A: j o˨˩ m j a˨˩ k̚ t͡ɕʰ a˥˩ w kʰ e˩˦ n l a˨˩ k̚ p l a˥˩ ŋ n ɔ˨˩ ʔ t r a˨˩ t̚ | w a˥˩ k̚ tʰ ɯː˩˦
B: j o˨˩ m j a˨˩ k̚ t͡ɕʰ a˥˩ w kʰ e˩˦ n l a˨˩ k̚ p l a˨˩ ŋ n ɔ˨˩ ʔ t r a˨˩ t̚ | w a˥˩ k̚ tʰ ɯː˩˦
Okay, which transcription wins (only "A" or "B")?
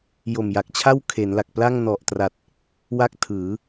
A